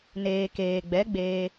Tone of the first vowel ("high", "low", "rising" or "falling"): low